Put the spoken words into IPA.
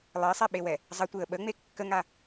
lˠ ə ɪ̯ sˤ ɛ ɓ e w ɛ | zˤ ə tʷ e ə̯ ɓ ə ŋ͡m e kː ə ŋ a

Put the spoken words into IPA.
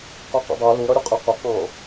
q ə˞ q ɛ̰ dˤ æ l u ɾ ʌ ɾʲ ʊ qʼ ɪ q ʊ q ɑ̃

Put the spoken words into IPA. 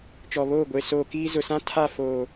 t͡ʃ ɔ˨ β oː˦˨ ɡʷ e˨ s oː˨ k iː˦ z ʊ˨ s ã˦ tʰ a˦˨ f oː˨

